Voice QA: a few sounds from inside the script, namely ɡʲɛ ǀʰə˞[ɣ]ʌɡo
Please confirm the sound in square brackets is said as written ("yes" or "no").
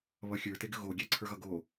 yes